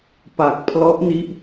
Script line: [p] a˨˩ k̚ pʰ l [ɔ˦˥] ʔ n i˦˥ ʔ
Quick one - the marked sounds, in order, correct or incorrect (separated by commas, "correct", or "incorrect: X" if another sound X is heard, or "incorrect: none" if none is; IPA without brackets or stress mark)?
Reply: correct, correct